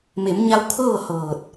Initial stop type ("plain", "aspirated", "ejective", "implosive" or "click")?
aspirated